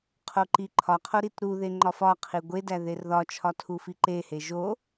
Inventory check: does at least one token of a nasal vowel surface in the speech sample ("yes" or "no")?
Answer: no